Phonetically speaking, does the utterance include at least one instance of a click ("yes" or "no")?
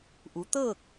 no